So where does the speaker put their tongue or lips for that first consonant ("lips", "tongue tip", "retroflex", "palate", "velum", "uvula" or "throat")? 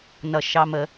tongue tip